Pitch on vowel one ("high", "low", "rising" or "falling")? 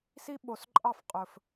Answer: high